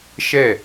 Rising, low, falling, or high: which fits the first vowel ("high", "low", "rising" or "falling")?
falling